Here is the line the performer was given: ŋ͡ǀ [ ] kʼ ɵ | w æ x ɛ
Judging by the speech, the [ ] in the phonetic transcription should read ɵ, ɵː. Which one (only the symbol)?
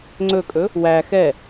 ɵ